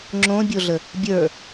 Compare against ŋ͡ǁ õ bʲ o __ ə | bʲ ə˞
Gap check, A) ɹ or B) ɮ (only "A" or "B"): B